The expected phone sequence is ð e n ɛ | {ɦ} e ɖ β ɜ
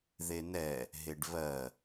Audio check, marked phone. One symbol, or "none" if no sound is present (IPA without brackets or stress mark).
ɦ